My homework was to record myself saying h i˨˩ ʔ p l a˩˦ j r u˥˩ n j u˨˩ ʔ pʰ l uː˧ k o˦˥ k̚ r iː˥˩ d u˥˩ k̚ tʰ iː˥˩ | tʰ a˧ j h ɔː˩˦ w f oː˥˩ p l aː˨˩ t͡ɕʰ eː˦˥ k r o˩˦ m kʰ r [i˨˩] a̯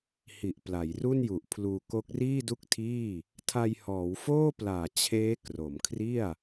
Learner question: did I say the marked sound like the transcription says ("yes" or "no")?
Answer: no